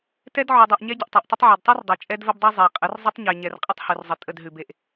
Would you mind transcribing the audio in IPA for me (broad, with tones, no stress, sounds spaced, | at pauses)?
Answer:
t ɛ˦ d ʕ ʉ˨ dˤ ʉ˨ ʔ ɲ ɛ˦ ɟ ə˨ ʔ tˤ e˨ ʔ tˤ ə˦ tˤ ʕ ɛ˨ d tˤ ʉ˦ r dˤ e˨ t͡ʃʼ ɛ˦ d v ə˦ b dˤ ɛ˦ zˤ e˨ qʼ ə˨˦ r zˤ ə˦ tˤ ɲ e˨ ɲ ɛ˨ r qʼ ə˦ tˤ h ʉ˨ r zˤ ə˨ tʼ ə˦˨ d ɦ ʉ˨ b e˨ ʔ